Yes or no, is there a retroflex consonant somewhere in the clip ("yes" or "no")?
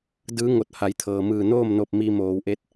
no